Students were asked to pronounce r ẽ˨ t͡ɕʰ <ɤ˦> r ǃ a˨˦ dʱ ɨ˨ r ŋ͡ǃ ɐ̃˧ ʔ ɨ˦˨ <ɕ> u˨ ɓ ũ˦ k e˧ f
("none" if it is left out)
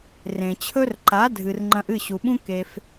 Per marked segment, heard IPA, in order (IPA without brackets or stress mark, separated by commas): ɵ˦, ɕ